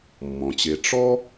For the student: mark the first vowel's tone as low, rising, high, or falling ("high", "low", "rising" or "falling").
low